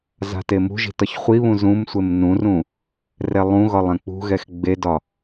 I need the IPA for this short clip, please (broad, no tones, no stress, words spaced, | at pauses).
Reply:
za̤temṳʒi̤ tɒçχʷiβũ zũmsʷem nũrũ | rɛlˠũɣɒlˠ ɛ̃k͡pṳɣɛx ɡ͡bedɒ